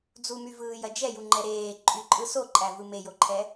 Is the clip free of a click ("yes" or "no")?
no